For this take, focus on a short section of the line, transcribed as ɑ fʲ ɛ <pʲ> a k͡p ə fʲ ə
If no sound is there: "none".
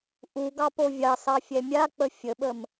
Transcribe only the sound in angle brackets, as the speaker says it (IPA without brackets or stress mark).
mʲ